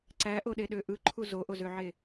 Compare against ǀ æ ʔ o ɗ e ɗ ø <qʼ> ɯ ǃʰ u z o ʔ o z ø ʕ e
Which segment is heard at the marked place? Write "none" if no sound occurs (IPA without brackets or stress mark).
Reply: ʔ